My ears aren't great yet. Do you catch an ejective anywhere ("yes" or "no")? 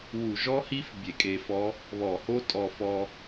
yes